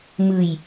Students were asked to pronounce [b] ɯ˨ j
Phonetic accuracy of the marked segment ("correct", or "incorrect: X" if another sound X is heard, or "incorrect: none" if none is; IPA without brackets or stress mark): incorrect: m